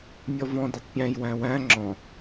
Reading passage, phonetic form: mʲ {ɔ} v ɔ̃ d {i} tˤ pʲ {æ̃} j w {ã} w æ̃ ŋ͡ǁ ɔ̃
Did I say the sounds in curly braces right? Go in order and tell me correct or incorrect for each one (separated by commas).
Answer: correct, incorrect, correct, incorrect